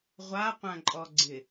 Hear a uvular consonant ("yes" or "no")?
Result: yes